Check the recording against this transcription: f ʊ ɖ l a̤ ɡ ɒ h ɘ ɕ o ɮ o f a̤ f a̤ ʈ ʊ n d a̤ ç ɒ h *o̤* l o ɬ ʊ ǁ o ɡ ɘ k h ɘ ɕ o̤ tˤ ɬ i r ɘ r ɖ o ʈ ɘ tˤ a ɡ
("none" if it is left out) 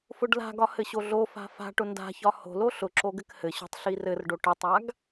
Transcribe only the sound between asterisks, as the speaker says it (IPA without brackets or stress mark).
o̤